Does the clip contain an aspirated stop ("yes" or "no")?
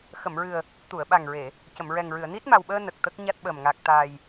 no